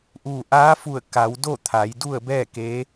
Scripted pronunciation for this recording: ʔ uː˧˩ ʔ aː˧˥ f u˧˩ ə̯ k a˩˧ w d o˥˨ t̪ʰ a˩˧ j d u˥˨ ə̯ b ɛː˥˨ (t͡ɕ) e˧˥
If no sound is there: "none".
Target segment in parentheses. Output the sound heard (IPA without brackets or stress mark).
k